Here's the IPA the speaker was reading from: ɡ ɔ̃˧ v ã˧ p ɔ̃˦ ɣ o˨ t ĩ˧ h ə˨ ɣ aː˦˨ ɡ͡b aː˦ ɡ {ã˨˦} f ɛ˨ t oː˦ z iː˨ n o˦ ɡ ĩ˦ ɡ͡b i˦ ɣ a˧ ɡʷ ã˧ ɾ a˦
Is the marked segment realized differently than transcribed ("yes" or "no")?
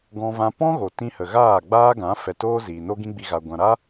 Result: no